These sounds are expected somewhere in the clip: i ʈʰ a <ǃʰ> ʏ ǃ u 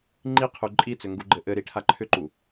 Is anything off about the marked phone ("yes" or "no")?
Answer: no